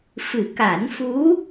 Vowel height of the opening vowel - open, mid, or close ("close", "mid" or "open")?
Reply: close